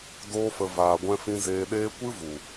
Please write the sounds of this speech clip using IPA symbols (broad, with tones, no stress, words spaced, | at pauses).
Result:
doː˦fə˧ vaː˧ɡʷɛ̃˦fĩ˦ zeː˧ɗeː˦ kʷɨ˦vu˨